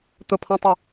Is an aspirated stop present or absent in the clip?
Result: present